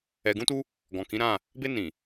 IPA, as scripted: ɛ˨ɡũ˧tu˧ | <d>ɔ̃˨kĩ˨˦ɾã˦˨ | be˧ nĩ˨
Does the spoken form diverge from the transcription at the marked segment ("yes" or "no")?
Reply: yes